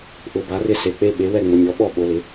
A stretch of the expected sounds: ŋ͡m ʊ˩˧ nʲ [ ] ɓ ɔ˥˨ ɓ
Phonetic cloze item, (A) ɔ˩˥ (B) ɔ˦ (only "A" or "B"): A